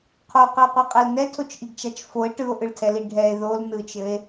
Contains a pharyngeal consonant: no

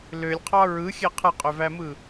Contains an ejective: yes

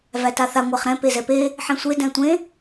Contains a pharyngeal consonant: yes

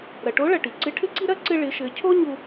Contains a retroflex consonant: yes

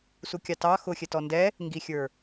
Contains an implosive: no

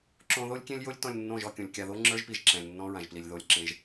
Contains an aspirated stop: no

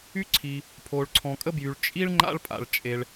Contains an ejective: yes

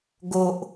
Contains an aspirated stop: no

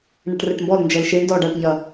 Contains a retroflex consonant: yes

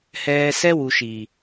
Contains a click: no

